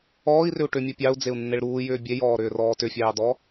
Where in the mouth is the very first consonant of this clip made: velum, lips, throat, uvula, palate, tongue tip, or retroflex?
tongue tip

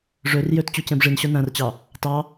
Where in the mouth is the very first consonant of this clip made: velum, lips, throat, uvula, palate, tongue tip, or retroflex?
retroflex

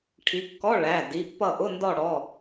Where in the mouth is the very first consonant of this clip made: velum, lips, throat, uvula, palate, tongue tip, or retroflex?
retroflex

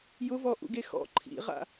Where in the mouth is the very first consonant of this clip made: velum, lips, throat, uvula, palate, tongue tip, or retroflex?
palate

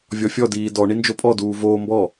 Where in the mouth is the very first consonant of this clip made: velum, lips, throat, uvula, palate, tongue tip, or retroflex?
lips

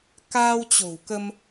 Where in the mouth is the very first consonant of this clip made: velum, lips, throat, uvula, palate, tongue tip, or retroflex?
velum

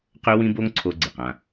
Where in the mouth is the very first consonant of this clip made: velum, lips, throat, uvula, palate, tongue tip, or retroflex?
uvula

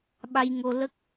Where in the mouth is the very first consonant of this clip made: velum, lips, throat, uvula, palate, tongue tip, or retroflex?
lips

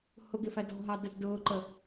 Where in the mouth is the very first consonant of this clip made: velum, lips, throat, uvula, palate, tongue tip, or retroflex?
throat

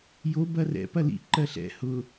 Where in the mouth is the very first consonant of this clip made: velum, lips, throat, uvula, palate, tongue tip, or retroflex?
palate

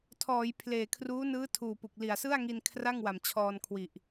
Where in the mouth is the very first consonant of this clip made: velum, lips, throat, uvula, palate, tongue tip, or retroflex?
tongue tip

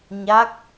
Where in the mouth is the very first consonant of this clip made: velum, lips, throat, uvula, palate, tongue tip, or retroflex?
palate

